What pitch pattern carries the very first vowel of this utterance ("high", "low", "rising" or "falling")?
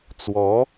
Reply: rising